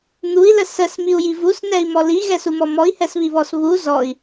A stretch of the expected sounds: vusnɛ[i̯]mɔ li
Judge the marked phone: correct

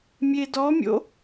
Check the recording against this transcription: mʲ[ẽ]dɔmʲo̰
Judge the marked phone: incorrect: e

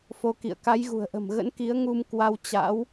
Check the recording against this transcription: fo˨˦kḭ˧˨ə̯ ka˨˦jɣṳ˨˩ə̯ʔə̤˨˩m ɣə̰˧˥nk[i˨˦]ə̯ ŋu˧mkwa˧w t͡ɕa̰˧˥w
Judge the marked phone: correct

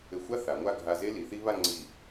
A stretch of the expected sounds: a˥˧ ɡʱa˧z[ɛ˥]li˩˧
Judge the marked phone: incorrect: e˥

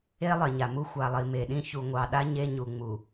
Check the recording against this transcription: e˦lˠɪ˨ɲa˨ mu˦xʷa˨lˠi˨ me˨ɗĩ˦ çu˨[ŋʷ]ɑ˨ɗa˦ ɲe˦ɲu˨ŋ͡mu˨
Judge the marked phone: correct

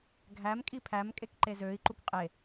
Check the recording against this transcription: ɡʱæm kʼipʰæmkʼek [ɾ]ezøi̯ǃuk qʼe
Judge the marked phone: incorrect: ǃ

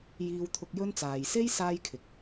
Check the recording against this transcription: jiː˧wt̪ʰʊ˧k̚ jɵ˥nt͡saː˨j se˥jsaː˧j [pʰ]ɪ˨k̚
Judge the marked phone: incorrect: kʰ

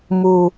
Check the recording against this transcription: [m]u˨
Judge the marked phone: correct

